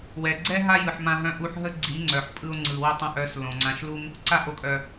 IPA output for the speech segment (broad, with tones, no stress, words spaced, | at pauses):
wɛ˨ɡ͡ǀɛ˦ ɦa˦jɯ˨ħmã˧ɦœ̃˧ ʔu˧ħɦə˦ ɡ͡ǀi˨˦ŋ͡ǀœ˨ħpʼɯ˧o̯ ŋ͡ǀɯ˨wə˦˨tˤɛ̃˧ʔœ˨˦s lõ˨ŋ͡ǀã˧ʃlu˦m | ǀa˧ʔo˨kʼœ˨